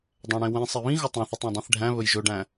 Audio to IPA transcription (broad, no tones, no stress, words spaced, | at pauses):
dˤæ̃ɽẽwẽ sˤiβĩ ɣɵtˤẽθɵtˤɛ̃ dˤĩθɖʱæ̃ βɵjʒɵɖæ̃